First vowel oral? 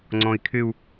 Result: no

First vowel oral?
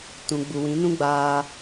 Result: no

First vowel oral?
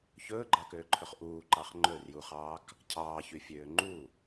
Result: yes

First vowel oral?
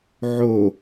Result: yes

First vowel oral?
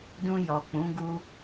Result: no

